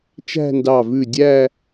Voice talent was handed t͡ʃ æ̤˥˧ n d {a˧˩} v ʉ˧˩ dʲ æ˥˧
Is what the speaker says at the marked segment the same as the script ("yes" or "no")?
no